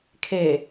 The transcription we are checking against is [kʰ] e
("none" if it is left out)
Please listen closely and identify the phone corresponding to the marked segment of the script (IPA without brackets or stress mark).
kʰ